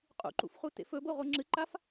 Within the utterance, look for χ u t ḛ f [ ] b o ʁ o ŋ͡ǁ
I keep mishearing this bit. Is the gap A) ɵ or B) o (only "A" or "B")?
A